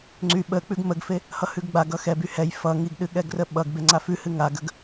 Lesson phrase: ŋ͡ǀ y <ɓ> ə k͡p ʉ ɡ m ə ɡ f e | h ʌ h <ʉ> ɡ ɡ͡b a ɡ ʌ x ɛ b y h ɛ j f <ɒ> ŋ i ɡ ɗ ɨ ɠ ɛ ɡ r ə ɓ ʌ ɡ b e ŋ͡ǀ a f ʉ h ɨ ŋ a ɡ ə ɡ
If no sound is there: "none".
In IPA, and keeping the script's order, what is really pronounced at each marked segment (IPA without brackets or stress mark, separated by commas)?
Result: ɓ, ʉ, ʌ